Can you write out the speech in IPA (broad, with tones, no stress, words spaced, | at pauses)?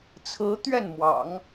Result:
t͡sʰɹ̩˧˥ t̪ɥɛ˥˩nmwɑ̰˨˩˦ŋ